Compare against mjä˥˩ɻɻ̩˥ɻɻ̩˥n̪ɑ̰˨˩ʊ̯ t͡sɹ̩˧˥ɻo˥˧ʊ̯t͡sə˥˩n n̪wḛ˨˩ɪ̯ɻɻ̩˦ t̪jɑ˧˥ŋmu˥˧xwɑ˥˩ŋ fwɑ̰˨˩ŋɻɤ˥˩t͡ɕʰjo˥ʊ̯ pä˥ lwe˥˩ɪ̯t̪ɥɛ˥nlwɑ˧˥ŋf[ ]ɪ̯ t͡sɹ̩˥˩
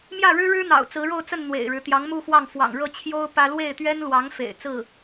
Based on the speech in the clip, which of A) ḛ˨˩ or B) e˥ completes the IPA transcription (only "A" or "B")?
A